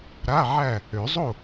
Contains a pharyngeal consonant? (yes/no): yes